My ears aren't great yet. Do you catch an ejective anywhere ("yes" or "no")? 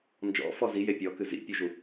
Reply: no